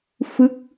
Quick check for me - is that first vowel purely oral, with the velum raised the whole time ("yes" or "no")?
yes